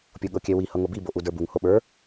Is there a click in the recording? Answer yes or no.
no